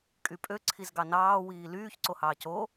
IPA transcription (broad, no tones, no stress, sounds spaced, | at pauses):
kʼ y pʼ ø ǀʰ i z ɡ ɑ n ɑː w iː l yː ç ǀ o h ɑː c o